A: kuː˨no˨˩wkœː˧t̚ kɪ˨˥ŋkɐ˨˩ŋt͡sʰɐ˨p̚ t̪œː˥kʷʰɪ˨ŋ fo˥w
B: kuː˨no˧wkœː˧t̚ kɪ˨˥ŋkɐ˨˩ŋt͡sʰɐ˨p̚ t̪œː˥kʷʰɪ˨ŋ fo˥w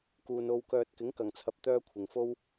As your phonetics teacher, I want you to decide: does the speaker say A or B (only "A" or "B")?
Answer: B